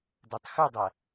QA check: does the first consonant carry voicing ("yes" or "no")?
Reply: yes